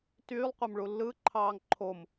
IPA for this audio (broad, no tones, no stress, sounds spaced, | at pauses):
t yː lˠ qʷ æ m ɭ u lː ɯ ǃʰ ɑː ŋ ǃʰ o m